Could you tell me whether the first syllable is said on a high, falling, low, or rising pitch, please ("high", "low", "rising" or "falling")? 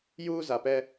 high